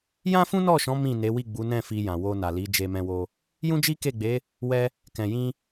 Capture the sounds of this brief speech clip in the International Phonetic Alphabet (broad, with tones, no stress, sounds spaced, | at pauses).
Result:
j ã˦ f ũ˦ n ɔ˦˨ ʃ ɔ̃˨˦ m ĩ˦˨ n e˨˦ w i˦˨ ɡ͡b u˨˦ n ɛ̃˦˨ f i˧ j ã˨ w o˧ n a˨ l i˨˦ d͡ʒ e˧ m ɛ̃˧ w o˧ | j ũ˦ d͡ʒ i˦ k e˦˨ ɡ͡b e˨˦ | w ɛ˧ | k ɛ̃˨ j ĩ˧